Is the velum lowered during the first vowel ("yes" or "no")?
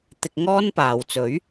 no